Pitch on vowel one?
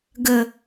low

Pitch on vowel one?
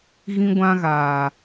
high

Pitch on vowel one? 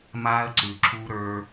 high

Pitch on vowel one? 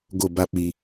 falling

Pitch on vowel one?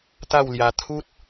falling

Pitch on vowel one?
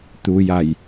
low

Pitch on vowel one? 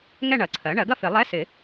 falling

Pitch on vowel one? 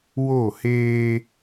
falling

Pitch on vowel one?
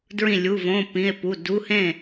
falling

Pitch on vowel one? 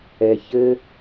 high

